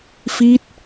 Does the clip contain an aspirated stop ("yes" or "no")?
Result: no